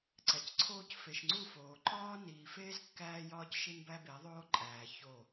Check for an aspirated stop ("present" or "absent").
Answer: present